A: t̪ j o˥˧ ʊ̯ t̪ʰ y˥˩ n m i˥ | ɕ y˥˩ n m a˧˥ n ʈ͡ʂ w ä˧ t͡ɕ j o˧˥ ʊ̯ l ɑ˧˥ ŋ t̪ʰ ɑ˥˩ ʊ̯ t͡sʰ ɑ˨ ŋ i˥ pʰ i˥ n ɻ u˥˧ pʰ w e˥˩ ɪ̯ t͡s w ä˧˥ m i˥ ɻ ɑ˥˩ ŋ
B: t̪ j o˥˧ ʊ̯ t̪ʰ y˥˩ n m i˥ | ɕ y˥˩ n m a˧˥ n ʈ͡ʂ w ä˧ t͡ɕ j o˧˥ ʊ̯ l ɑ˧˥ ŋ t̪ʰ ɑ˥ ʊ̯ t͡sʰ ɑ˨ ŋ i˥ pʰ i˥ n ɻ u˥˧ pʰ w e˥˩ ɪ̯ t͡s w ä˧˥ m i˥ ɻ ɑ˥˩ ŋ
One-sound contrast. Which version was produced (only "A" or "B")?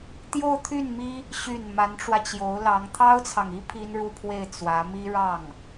B